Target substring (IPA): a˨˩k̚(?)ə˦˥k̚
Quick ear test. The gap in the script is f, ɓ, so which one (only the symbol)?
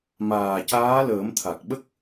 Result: ɓ